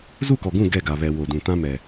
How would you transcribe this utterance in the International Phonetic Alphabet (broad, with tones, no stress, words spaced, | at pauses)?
zu˦˨kɔ˨ɡũ˦˨ ɡɛ˦˨ɡa˨βɛ˨ wo˨dũ˨tã˦ mɛ˨